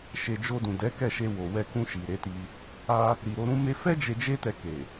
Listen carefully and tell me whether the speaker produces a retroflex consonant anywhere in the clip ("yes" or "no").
no